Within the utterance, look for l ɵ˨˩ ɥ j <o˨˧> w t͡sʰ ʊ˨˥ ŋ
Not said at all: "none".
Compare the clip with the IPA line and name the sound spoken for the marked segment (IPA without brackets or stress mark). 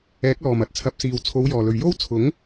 o˥